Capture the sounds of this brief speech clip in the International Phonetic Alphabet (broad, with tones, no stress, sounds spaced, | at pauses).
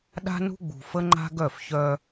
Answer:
ɗ a̤˦ n ṳ˦ ɡ͡b ṳ˨ f ə˦ ŋ͡ǃ a̤˦ ɡ œ˦˨ f ç œ˦